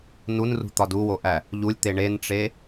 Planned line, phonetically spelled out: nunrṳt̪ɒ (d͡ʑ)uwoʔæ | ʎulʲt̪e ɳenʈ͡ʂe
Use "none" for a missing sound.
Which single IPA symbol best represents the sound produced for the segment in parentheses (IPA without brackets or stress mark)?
d